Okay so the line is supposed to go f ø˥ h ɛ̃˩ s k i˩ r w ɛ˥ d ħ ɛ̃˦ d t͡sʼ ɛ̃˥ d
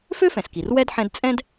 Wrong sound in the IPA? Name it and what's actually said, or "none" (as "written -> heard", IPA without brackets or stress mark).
h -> f